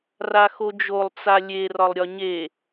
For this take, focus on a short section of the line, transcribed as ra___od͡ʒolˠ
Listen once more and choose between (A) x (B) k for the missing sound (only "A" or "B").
A